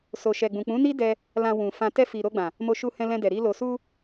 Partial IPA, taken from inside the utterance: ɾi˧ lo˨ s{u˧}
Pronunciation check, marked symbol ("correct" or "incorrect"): correct